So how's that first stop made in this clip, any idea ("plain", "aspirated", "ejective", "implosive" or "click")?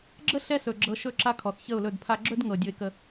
click